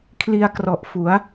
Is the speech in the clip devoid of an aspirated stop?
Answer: no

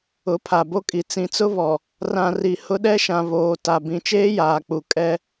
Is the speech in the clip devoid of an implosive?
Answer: no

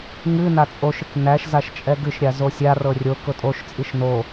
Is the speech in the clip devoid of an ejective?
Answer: no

